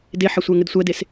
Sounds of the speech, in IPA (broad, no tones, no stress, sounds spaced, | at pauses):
d e ħ ɐ sʷ ɛ ŋ ɘ d sʷ ɛ d e s